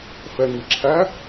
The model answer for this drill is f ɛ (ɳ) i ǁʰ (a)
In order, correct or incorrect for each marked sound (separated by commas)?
incorrect, incorrect